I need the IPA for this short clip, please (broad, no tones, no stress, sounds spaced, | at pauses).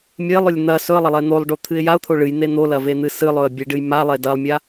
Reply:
mʲ e lˠ ɵ lʲ n̪ ɐ s ɵ ə̯ lˠ ɐ lˠ e n̪ o lˠ ɖ o t̪ʰ ɨ ɪ̯ j a ʊ̯ t̪ʰ o ɭ ɨ j n̪ e n̪ o l ɐ v e n̪ ɨ s ɨ lˠ ɵ ə̯ bʲ e ɖ ɨ j m a lˠ e d ɐ lˠ mʲ a